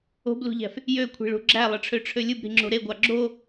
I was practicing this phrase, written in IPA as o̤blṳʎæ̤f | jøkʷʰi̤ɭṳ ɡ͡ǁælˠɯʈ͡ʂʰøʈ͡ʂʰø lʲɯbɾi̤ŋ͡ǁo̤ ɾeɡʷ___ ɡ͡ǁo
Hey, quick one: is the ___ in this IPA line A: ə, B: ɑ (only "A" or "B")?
B